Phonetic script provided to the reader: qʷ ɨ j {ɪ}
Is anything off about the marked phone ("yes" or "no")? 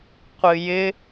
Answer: no